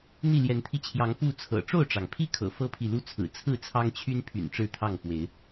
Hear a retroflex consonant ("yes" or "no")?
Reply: yes